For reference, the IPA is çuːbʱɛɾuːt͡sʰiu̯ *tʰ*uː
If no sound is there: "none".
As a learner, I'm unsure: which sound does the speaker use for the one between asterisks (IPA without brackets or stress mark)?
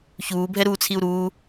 ɾ